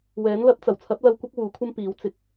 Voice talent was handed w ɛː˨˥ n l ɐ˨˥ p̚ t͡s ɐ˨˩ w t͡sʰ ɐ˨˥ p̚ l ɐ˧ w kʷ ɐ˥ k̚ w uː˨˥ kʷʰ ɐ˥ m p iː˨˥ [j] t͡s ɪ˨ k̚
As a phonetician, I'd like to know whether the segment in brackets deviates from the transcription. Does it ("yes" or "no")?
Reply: yes